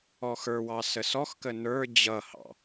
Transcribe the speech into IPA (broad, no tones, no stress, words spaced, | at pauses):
ɔxə˞wɑ səsɔxkə nə˞ d͡ʑʌhɑ̰